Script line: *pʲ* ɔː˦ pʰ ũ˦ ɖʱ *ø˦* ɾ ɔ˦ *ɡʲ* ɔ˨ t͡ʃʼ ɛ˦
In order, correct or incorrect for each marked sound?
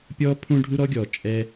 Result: correct, incorrect: u˦, correct

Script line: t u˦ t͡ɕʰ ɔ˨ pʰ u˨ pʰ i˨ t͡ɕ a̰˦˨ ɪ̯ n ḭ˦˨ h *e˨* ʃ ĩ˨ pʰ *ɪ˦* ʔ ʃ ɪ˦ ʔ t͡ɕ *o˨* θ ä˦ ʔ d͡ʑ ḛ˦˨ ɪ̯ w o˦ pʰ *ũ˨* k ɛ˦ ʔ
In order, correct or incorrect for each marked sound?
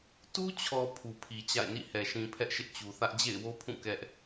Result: incorrect: ɛ˨, incorrect: ɛ˦, incorrect: u˨, incorrect: ũ˦˨

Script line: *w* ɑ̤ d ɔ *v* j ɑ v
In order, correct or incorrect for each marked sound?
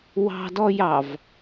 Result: correct, incorrect: none

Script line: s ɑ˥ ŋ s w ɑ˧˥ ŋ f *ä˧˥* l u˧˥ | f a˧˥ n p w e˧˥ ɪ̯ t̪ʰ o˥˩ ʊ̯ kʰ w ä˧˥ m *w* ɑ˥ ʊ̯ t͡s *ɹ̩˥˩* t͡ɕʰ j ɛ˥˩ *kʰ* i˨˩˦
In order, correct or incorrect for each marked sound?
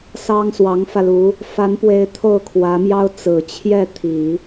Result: incorrect: ä˧, incorrect: j, incorrect: ɹ̩˨˩, incorrect: t̪ʰ

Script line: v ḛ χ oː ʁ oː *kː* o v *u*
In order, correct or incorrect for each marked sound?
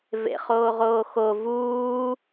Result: incorrect: x, incorrect: uː

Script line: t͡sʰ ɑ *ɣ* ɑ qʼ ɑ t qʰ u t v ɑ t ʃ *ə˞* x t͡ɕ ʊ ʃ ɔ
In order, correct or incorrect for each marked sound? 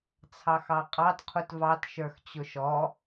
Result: incorrect: x, correct

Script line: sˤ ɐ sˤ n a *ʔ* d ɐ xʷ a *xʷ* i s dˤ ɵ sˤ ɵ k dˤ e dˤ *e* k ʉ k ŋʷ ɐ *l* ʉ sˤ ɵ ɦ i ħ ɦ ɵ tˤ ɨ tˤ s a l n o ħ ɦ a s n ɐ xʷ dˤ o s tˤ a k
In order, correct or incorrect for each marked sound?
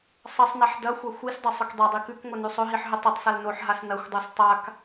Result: incorrect: ħ, correct, incorrect: i, incorrect: n

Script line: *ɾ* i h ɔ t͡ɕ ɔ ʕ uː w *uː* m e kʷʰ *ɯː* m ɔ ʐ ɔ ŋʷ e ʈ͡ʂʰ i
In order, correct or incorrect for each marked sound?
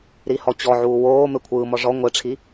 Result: correct, incorrect: oː, correct

